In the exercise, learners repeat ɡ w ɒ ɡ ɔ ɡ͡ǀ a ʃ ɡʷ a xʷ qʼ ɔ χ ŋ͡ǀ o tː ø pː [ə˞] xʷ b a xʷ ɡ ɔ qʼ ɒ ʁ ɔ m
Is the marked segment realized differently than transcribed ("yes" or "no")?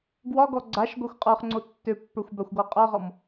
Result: no